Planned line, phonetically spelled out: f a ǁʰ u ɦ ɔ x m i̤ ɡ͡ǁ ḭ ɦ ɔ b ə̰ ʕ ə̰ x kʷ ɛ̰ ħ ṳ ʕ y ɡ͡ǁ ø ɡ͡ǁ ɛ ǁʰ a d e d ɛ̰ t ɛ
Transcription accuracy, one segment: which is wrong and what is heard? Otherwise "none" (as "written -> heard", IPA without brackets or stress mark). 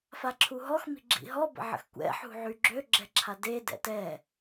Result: none